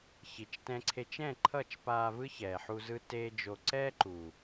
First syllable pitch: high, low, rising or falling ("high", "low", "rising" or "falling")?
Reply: low